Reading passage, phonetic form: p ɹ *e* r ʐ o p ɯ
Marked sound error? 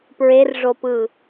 no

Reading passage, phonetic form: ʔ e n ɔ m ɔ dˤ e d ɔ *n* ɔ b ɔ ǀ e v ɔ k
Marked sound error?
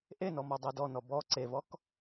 no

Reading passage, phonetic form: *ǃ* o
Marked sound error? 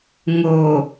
yes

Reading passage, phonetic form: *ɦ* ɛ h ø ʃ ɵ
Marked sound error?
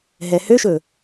no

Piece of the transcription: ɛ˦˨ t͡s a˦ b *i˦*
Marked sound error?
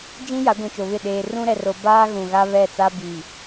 yes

